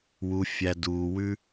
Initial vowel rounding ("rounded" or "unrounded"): rounded